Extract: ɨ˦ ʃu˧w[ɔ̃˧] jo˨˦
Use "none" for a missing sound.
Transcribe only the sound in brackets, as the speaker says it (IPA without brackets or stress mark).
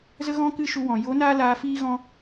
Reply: ɔ̃˨